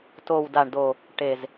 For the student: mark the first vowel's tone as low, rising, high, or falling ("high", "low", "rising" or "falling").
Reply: low